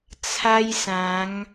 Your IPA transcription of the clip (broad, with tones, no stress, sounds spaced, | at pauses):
t͡sʰ a˦ j s ã˨˦ ŋ